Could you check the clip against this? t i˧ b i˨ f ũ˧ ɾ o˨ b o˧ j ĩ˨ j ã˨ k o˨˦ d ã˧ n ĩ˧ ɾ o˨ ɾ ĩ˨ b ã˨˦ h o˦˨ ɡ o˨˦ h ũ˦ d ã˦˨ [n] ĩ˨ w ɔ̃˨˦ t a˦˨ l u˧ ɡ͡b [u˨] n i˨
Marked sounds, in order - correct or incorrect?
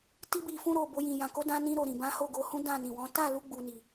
correct, incorrect

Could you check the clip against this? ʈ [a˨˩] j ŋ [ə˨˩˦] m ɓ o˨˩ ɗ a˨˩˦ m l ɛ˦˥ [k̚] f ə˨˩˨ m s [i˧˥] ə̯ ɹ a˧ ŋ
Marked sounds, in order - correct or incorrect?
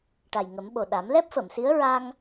correct, correct, incorrect, correct

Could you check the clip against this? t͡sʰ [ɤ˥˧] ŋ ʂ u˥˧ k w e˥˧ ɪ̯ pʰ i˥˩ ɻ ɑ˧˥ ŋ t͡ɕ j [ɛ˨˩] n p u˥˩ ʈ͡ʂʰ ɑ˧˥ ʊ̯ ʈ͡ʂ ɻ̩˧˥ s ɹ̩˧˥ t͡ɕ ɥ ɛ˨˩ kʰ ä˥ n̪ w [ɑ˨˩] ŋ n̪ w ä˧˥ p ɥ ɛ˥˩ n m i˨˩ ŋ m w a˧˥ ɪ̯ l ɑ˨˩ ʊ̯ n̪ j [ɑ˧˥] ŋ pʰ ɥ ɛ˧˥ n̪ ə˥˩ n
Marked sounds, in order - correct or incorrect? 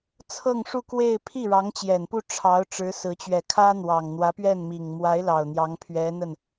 correct, correct, correct, correct

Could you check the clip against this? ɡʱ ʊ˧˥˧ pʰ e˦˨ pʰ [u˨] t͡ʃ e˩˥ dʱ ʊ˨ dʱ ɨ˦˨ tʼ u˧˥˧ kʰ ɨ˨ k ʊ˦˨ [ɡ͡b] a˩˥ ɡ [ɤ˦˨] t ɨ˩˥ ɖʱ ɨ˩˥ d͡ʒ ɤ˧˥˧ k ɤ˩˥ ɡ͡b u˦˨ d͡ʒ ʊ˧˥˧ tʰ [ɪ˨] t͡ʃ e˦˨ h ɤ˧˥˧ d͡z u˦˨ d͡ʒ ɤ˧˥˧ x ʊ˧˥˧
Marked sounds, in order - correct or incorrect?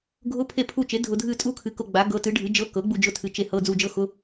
incorrect, correct, incorrect, incorrect

